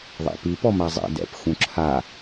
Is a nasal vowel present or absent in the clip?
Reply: present